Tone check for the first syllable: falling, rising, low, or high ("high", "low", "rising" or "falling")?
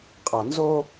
low